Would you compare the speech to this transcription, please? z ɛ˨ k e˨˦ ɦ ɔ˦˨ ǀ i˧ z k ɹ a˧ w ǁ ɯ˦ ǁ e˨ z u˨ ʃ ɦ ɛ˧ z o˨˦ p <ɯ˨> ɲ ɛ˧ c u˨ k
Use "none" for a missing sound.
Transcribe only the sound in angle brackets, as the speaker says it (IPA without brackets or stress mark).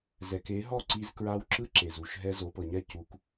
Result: ɤ˨